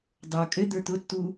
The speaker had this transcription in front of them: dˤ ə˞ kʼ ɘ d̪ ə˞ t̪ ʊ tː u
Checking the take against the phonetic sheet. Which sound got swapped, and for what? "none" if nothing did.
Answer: none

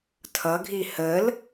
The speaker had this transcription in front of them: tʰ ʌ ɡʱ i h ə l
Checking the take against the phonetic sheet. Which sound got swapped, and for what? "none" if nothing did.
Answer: none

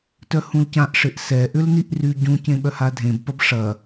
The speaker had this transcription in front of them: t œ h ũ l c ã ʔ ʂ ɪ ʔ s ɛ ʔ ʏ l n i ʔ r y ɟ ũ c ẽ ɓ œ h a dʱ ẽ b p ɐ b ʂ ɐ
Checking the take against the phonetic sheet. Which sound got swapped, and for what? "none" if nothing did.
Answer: none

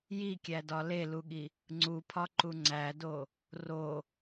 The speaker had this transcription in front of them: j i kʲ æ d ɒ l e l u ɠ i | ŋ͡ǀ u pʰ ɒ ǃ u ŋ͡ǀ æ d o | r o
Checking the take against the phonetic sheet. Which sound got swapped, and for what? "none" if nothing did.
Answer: none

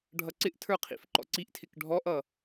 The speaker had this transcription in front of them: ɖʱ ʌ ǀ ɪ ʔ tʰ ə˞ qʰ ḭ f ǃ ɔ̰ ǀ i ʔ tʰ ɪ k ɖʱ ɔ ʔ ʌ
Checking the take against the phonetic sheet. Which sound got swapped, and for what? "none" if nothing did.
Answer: none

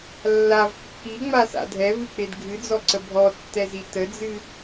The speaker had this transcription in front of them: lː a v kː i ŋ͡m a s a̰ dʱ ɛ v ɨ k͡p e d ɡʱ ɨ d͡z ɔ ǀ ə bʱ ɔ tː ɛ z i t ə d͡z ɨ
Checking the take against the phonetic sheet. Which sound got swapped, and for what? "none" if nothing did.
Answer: none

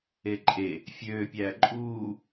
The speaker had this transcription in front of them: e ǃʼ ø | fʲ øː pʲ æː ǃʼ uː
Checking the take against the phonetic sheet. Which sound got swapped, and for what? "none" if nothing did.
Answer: ø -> e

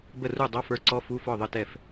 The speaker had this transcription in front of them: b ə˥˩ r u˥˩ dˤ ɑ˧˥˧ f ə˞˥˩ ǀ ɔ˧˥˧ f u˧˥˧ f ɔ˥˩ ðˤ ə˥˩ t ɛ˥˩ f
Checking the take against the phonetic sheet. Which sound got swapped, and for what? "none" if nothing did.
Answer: none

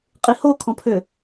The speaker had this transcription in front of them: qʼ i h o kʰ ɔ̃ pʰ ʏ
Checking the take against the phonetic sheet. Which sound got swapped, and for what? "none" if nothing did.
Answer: none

